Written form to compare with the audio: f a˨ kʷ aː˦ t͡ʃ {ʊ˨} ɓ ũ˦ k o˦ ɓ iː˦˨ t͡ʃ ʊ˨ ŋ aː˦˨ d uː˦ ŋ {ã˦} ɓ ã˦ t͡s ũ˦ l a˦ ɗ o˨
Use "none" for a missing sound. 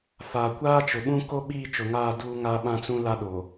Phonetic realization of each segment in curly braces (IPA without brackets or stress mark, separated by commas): ʊ˨, a˦